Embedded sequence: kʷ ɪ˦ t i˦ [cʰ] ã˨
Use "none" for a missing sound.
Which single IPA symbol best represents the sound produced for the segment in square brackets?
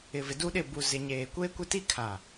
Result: kʰ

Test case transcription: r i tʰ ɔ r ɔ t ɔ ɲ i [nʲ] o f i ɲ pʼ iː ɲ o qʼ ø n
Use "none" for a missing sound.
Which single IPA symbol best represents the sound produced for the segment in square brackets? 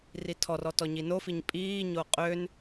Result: n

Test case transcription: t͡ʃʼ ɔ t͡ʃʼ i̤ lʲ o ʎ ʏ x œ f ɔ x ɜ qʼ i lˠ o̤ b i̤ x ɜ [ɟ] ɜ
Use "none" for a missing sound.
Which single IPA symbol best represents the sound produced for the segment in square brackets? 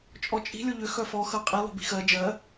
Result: d͡ʒ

